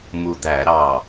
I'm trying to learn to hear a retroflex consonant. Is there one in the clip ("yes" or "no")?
no